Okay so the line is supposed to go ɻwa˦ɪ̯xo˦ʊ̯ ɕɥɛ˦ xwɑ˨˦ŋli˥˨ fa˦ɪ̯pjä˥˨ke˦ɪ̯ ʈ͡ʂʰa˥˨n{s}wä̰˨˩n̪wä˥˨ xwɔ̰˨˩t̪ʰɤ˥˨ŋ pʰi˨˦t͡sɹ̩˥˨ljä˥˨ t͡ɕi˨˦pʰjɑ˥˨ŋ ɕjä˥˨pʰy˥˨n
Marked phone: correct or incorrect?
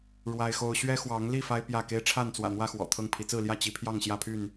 incorrect